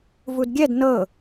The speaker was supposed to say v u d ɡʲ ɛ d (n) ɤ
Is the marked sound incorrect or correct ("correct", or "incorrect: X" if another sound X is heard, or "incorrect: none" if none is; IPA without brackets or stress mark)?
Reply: correct